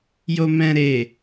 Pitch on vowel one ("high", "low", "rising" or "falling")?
low